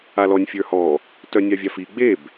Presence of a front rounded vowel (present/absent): present